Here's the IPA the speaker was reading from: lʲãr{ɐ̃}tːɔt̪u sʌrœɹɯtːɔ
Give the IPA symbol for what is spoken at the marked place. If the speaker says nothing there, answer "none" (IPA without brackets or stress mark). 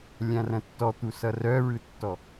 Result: ɐ̃